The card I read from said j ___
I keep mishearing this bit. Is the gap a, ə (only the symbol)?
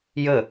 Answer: ə